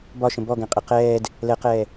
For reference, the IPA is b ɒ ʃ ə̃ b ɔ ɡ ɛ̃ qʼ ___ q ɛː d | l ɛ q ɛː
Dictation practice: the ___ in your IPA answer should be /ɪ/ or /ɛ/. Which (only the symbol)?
ɪ